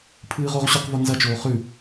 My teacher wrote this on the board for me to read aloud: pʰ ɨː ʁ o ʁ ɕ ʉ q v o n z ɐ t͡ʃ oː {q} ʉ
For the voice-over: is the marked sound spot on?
no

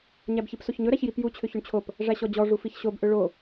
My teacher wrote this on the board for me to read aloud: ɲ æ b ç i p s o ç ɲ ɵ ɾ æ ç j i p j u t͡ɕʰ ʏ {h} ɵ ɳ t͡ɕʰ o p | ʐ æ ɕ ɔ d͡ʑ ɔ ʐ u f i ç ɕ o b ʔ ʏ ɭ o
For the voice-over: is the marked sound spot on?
no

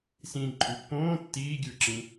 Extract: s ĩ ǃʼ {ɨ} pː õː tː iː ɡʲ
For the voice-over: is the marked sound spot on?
no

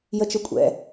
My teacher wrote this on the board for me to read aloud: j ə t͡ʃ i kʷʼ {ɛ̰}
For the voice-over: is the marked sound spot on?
yes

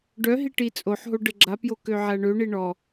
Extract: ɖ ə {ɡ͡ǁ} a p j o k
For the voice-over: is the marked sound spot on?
yes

